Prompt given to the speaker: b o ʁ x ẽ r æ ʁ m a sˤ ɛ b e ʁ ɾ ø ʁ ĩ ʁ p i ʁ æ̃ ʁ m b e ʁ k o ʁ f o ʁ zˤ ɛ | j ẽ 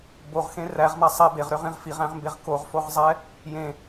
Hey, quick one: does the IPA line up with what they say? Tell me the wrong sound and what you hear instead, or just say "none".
p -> f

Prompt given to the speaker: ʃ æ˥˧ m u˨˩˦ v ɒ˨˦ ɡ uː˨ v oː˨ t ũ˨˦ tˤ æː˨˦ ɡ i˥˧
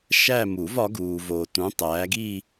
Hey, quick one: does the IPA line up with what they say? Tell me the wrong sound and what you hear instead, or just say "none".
none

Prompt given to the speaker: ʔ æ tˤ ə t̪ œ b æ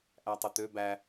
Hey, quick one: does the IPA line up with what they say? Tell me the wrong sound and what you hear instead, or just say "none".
œ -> ø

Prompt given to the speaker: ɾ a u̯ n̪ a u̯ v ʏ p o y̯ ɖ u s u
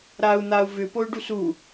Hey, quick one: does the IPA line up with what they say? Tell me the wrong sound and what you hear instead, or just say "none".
none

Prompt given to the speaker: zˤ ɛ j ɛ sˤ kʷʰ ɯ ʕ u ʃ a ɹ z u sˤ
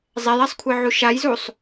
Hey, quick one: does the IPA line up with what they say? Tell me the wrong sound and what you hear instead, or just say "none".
ɹ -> j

